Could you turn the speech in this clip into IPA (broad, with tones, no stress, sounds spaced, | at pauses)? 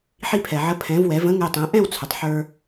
ħ i˧ pʰ ɛ˩ ʕ ə˩˥ pʰ ɛ̃˩˥ v w ɛ˩˥ v ə̃˥ ŋ ɛ˧ tˤ ɛ̃˩˥ ʔ ɛ̃˥˩ w t͡sʰ ə˩ tˤ ħ ə˞˧